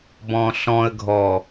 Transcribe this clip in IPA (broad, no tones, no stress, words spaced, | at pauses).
bɔ̃ɬɔ̃ə̯ɡʱɔ